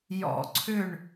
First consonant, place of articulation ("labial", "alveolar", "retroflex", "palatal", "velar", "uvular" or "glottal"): palatal